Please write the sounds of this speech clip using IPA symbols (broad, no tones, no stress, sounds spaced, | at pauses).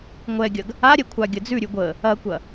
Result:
ŋʷ ɛ ɡʲ ɐ ɡ | a ɾʲ ɛ kʷʰ a ɡʲ ə d͡z ʉ ɾʲ ʉ ɡʷ ə | ɐ kʷ ɐ